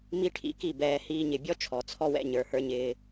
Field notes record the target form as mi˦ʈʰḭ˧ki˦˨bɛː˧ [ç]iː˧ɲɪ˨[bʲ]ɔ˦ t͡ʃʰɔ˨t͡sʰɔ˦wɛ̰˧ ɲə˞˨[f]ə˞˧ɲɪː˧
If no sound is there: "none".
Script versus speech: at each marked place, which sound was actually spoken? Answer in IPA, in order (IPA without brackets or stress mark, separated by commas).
h, bʲ, h